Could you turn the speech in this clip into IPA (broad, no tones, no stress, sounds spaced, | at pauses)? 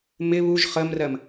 m ɪ β u ʒ χ ə m r ɜ m